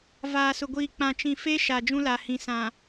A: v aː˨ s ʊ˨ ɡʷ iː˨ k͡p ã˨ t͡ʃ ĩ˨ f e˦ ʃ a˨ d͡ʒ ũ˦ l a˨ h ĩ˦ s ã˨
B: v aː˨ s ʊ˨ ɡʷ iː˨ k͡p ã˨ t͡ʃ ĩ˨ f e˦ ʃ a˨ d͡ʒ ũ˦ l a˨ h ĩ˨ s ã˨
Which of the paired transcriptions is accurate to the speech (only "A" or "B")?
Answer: B